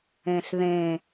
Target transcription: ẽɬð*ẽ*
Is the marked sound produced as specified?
yes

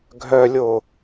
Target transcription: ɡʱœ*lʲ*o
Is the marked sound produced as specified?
yes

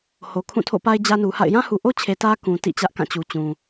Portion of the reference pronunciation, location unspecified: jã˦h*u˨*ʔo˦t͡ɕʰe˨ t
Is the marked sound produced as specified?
yes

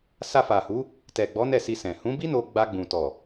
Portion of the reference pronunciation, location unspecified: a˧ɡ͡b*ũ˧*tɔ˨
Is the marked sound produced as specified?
no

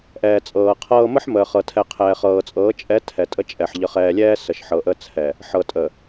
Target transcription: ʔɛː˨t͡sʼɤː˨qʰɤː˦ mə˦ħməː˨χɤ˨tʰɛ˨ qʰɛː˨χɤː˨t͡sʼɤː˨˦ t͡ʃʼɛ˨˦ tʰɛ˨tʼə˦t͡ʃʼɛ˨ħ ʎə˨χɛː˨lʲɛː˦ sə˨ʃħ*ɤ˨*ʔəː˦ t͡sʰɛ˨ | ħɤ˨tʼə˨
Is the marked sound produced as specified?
yes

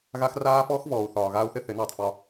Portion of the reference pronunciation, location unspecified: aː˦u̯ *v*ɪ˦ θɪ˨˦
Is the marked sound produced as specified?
no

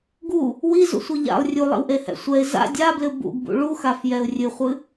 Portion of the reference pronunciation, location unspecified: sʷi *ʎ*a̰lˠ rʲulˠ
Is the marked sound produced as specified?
yes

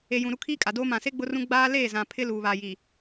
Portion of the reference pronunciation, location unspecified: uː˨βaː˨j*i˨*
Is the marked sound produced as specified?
yes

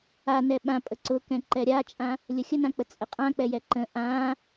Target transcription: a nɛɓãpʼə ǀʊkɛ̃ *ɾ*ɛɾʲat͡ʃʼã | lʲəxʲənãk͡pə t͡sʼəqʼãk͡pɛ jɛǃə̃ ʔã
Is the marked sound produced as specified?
no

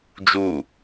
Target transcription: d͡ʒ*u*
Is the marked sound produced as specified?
yes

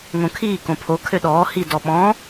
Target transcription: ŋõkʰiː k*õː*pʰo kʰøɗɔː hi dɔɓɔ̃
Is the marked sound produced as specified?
no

